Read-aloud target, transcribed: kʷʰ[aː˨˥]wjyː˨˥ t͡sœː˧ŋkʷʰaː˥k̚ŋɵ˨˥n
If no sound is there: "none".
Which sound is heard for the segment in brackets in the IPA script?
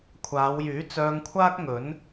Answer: aː˨˧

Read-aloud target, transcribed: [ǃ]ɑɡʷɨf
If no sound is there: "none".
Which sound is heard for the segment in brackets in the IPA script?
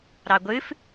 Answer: ɾ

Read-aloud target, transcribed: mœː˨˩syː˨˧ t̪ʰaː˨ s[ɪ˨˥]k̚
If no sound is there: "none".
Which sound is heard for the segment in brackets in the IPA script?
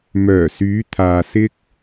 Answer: ɪ˧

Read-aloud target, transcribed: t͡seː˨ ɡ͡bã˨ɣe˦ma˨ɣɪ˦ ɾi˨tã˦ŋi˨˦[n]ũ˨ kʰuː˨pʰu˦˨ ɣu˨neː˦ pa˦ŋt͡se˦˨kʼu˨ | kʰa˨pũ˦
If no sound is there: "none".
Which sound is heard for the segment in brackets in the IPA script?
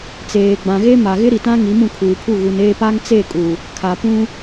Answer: m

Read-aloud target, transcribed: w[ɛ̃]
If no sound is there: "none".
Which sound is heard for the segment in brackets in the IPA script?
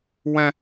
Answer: ɛ̃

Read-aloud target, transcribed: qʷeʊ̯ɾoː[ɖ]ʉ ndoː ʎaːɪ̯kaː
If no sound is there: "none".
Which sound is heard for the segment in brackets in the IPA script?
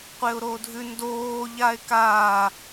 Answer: dʱ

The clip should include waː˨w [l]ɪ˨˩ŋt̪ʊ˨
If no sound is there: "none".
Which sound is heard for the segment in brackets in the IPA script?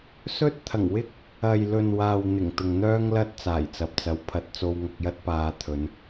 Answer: n̪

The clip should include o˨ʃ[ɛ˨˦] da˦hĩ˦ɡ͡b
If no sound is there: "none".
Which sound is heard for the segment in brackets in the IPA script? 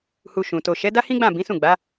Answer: ɛ˨˦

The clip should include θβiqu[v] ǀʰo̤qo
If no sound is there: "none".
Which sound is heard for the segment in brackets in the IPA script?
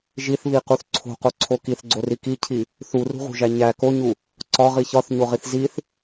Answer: θ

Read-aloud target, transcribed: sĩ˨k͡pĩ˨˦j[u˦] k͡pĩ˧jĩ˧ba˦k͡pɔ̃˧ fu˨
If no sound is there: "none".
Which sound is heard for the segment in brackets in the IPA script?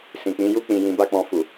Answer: u˦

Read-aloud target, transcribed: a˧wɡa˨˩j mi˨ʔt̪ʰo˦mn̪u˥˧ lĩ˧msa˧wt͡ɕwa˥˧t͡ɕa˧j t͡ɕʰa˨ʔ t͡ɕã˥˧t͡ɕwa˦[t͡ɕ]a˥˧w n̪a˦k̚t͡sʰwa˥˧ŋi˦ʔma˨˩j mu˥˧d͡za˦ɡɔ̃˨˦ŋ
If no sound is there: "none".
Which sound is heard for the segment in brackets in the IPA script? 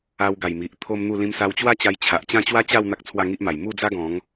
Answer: t͡ɕ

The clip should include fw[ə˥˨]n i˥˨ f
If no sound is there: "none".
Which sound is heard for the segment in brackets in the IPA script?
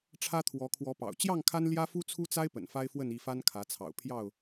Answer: ə˥˨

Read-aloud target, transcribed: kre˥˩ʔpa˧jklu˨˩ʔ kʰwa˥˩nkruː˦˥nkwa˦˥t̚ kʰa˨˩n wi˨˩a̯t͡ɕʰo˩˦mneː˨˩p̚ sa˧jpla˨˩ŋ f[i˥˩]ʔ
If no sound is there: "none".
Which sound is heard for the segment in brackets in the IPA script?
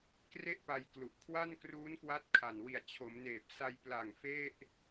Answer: e˥˩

